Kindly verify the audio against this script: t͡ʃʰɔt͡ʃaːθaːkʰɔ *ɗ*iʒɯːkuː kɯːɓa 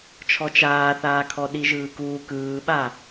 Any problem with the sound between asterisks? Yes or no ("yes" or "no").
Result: no